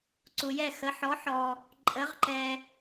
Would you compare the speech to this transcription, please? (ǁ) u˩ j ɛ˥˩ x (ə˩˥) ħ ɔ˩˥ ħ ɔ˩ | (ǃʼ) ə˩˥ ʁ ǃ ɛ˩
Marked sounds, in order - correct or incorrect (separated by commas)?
incorrect, correct, correct